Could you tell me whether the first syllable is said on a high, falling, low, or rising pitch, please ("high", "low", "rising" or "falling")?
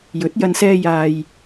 rising